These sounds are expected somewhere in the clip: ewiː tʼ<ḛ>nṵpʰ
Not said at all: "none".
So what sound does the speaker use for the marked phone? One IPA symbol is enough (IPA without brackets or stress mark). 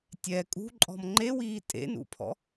ḛ